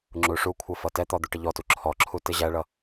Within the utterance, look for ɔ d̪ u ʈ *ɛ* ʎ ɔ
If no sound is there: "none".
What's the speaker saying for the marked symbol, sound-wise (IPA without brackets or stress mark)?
ɪ